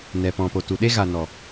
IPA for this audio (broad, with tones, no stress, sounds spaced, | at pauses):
n ɛ˨ p ɔ̃˨ p o˨ t u˨ ɗ e˦ ɣ a˨ n ɔ˨